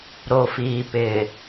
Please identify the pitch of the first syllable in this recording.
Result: low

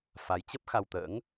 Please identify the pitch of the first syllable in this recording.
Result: rising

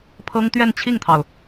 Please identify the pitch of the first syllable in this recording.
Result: high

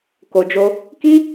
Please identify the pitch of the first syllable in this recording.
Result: low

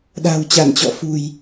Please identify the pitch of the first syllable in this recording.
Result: low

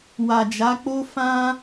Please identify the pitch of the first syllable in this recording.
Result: low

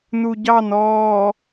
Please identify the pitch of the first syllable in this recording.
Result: low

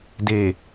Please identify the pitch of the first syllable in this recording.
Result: low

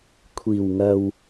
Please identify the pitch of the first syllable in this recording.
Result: low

